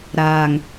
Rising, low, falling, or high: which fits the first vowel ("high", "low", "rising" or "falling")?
low